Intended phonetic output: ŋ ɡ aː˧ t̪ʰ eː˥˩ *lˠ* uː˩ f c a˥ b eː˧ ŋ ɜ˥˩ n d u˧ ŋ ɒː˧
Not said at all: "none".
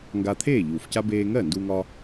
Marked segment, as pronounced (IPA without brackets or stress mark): ʎ